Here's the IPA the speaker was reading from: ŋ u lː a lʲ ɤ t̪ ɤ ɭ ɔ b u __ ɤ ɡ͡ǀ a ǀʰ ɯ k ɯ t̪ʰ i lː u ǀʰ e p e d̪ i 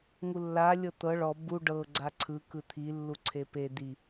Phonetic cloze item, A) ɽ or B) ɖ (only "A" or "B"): B